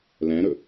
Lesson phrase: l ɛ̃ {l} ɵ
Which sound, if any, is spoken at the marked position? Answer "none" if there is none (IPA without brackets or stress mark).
ɾ